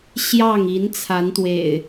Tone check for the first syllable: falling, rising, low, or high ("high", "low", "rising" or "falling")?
falling